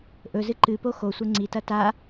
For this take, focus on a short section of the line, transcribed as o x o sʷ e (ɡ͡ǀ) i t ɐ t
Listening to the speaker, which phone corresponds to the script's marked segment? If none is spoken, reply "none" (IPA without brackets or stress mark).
ŋ͡ǀ